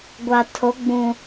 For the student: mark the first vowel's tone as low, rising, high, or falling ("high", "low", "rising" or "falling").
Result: low